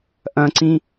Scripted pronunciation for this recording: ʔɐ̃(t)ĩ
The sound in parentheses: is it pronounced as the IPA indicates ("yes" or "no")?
no